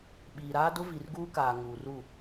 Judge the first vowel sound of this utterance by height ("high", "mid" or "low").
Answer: high